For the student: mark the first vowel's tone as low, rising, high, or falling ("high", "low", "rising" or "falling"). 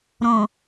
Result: low